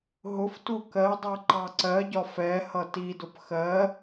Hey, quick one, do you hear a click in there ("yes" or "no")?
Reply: yes